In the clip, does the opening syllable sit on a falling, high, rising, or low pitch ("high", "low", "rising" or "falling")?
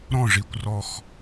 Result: falling